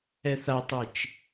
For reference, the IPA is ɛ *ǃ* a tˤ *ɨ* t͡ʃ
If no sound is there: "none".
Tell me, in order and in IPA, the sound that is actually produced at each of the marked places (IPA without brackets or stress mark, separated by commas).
θ, ɨ